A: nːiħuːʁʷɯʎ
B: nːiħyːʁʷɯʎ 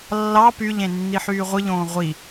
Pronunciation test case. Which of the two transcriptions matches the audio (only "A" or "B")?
B